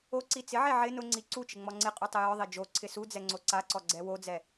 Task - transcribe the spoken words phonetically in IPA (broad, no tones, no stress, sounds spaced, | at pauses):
o ǀ i t͡s ɪ ʕ e ʕ ɪ n ʊ ŋ͡ǀ i ǀ u t͡ʃ ɪ ŋ͡m ɔ ŋ͡ǀ ɪ qʼ u tˤ ɪ j ɔ ðˤ e d͡ʒ o ǀʰ ɪ s u d͡z ɛ ŋ͡ǀ o ǀ a ǀ ɔ ɡ͡ǀ ɛ w o d͡z ɛ